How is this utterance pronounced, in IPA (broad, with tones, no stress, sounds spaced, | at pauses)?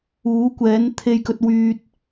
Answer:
uː˨˥ kʷ ɛː˨˥ n t̪ʰ e˧ j k ɵ˧ t̚ w yː˧ t̚